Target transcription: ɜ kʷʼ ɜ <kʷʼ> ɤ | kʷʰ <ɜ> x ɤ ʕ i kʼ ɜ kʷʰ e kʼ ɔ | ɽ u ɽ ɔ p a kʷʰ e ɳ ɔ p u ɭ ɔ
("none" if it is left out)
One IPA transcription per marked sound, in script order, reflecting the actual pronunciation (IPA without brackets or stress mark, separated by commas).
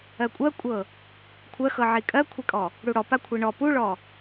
kʷʼ, ɜ